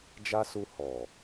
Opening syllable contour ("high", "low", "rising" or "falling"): high